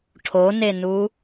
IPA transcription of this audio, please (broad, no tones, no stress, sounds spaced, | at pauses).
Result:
ʈʰ o n e n u